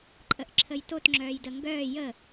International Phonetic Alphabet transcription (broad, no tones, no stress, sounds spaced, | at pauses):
ǃʼ ə ʔ ǁʰ ə j t o t ŋ͡ǁ œː j d ə ŋ ɡ œː j ə